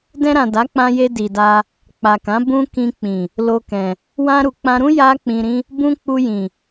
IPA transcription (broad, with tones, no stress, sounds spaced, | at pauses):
d ɛ̃˧ ɾ ã˨ d a˨˦ k͡p ã˧ j e˧ d i˨ d a˧ | k͡p a˨ k ã˨˦ b ũ˧ k ĩ˧ k͡p ĩ˨ | l o˧ k ɛ̃˨ | w ã˧ ɾ u˨ k͡p ã˧ ɾ ũ˦ j a˦ k͡p ĩ˧ ɾ ĩ˦ | b ũ˧ k͡p u˧ j ĩ˨